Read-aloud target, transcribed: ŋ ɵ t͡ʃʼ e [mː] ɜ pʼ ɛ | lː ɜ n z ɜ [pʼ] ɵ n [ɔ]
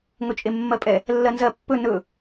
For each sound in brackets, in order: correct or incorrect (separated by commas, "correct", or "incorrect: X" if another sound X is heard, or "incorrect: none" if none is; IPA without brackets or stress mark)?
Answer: correct, incorrect: pː, incorrect: ɵ